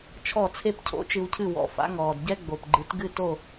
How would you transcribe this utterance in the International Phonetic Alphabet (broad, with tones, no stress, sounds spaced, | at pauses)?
t͡ʃʰ ɔ˥˩ t͡sʰ e˥ p cʰ o̰˥ t͡ʃ ɨ˧ w cʰ ɨ˥˩ w ɔ̰˩˥ f a̰˩˥ ŋ ɔː˩ d ɟ ɛ˥ ɡ͡b o˩ p ɡ͡ǃ ɨ˩˥ t ɡ ɨ˥˩ t o˥˩